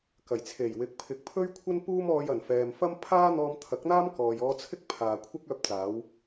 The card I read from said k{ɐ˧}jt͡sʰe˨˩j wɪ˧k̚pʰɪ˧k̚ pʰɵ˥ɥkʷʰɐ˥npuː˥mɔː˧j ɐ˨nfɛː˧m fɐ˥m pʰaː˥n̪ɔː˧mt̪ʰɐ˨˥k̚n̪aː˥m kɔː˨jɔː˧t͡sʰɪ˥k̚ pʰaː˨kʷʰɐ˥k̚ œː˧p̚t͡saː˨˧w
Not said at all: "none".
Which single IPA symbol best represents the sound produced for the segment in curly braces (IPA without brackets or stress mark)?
ɐ˨˩